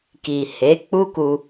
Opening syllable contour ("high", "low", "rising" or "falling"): low